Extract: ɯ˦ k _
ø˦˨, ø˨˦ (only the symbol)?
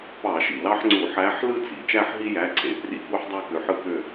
ø˦˨